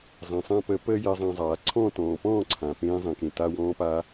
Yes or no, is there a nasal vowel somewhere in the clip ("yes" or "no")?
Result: yes